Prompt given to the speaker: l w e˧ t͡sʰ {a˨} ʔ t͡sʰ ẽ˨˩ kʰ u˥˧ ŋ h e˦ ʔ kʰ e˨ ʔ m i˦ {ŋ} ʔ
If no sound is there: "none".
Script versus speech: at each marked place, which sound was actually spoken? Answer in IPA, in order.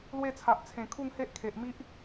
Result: a˨, none

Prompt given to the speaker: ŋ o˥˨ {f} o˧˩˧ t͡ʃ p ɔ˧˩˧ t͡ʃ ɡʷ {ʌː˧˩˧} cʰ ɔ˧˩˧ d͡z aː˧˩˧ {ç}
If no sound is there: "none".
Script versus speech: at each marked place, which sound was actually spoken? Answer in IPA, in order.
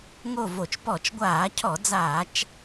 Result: v, aː˧˩˧, t͡ʃ

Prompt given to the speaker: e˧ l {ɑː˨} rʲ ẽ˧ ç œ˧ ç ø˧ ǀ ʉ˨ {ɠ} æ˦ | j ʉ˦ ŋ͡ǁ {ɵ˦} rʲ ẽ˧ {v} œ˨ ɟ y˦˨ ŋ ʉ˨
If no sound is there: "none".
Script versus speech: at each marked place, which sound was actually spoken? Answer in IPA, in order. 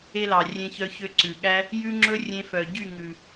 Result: ɑ˨, ɠ, ɵ˦, f

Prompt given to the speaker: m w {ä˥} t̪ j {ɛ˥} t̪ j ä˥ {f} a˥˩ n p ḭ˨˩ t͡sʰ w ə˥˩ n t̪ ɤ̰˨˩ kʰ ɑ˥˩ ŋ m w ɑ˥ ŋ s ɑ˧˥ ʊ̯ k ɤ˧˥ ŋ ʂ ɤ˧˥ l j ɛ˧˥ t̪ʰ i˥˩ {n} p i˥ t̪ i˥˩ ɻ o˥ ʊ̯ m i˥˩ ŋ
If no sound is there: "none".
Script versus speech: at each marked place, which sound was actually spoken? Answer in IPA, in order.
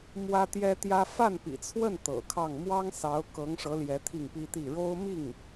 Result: ä˥, ɛ˥, f, ŋ

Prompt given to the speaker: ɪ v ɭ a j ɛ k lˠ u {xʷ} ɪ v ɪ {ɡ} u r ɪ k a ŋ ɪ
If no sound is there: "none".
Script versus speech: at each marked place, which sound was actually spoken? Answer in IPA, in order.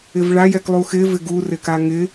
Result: x, ɡ

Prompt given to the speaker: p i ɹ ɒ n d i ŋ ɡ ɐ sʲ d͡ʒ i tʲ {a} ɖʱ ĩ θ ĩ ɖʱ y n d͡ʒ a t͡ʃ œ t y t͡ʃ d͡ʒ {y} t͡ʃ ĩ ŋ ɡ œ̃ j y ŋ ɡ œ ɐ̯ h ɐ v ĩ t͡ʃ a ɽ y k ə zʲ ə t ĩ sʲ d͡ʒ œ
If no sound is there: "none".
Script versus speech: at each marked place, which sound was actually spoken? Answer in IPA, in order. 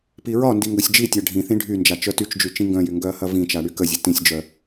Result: a, y

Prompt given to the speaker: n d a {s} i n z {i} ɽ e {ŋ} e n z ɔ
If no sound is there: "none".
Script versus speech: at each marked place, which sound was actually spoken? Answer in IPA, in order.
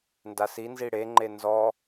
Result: s, i, ŋ͡ǃ

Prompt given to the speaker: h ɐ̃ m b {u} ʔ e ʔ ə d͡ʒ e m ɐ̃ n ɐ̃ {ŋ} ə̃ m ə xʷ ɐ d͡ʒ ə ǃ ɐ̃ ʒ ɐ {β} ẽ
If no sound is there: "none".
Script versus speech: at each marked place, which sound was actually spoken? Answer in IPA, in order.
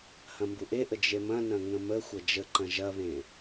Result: u, ŋ, β

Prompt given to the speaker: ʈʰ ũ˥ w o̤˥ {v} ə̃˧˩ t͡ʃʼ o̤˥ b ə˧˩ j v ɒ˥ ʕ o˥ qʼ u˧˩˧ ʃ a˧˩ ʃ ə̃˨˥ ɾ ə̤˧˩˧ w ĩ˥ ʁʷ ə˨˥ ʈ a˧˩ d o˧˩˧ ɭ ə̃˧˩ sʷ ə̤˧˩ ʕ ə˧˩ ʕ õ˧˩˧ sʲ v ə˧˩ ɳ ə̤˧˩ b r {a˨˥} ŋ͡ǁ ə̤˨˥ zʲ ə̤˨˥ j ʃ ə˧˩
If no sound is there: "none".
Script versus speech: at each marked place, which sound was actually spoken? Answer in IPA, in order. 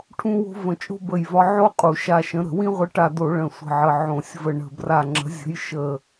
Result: v, a˧˩

